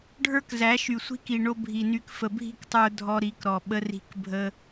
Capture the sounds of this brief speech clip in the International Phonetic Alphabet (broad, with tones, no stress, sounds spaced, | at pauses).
ɖʱ ə˞˦ k z æ˨˦ ʃ y˨ sʷ i̤˦ k i˨ ɳ o˧ bʱ i˨ n y˧ k f ə˨ bʱ i̤˦ k tˤ ə˞˧ dʱ ɔ˧ ɾ i˨˦ k ɾ ɔ˨ ɓ ə˧ r i̤˧ k bʱ ə˧